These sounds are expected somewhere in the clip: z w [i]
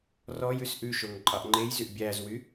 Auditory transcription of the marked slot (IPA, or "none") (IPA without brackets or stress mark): y